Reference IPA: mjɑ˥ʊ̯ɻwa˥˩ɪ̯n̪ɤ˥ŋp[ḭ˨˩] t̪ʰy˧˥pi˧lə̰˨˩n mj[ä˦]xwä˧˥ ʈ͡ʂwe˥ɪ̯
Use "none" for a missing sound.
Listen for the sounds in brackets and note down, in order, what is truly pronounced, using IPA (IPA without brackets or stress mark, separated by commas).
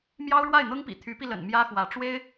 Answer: ḭ˨˩, ä˥